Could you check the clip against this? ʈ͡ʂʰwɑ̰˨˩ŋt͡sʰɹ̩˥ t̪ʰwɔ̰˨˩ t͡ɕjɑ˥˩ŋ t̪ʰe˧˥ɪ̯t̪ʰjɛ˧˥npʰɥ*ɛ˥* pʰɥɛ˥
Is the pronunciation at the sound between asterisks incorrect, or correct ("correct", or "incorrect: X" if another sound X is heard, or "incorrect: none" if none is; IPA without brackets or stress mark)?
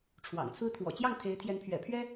incorrect: ɛ̰˨˩